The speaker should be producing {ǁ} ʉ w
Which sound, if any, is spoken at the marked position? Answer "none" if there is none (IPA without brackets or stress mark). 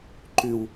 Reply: ǃ